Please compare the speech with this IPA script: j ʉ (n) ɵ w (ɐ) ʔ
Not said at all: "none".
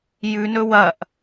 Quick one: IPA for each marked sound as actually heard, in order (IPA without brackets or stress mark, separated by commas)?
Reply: n, ɐ